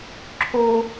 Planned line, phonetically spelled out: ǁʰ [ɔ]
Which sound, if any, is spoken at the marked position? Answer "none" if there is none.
o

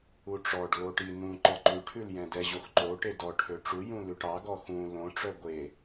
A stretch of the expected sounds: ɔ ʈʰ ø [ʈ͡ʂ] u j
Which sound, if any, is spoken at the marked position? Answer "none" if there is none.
ʈ͡ʂ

